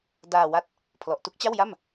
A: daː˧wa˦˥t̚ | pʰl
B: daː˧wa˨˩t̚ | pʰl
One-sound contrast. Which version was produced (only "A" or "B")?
A